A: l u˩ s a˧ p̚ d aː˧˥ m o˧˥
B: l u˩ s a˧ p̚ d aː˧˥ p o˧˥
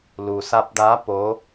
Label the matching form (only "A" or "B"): B